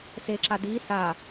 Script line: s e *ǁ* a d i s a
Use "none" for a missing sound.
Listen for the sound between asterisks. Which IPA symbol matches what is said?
ǁ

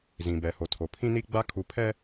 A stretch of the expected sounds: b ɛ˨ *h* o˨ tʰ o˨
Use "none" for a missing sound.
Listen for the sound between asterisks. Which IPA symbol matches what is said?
h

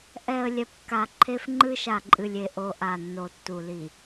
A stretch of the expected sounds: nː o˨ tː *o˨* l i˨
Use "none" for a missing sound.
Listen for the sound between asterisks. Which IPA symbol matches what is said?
u˨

